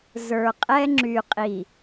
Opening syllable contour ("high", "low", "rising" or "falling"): low